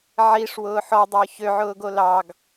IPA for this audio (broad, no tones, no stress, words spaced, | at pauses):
ʕiʂ wʊːħɔdˤʊː çøʕʊːɡo lɑɡ